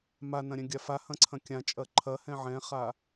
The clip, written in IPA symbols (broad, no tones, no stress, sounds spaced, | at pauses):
m a n ɐ̃ ɾʲ ɛ̃ ɡʲ a f a h ɐ̃ ǀʰ ɐ̃ kʲ ã t͡ʃʼ ɐ ǃʰ ɐ h ɛ̃ ʕ ɛ̃ χ a